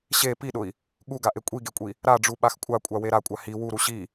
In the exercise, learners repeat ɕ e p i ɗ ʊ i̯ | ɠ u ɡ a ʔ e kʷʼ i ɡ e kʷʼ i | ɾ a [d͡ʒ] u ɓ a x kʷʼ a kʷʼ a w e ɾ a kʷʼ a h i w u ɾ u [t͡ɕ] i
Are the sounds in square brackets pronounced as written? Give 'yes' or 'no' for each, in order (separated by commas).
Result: no, no